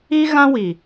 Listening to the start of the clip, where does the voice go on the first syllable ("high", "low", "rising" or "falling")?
high